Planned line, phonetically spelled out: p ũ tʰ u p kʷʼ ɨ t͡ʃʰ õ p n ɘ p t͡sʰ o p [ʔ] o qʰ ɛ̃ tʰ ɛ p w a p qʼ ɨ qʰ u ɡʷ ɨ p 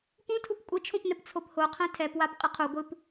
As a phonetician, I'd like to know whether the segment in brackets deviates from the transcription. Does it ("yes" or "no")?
yes